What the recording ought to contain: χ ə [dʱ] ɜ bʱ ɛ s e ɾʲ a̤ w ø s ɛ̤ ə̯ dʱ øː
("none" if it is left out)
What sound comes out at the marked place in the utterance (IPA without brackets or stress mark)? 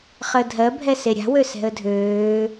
dʱ